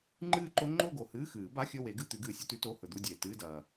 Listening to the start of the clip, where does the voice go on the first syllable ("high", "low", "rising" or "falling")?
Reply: falling